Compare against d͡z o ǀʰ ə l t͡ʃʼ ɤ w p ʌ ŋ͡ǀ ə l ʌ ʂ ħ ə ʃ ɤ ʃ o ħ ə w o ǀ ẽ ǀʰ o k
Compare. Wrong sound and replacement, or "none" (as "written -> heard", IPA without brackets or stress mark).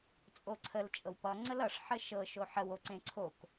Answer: d͡z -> t͡sʼ